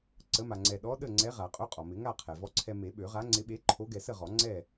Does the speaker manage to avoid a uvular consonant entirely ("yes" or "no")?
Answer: no